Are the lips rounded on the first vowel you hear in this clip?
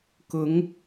yes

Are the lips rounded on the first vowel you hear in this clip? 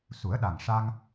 yes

